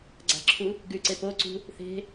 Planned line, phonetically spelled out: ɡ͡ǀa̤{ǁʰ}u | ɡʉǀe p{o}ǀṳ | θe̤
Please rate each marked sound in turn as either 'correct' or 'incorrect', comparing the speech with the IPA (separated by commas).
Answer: correct, correct